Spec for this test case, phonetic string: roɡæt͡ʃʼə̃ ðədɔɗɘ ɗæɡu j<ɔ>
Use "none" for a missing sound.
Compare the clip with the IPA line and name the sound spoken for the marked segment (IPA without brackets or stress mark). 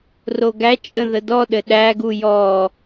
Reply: ɔ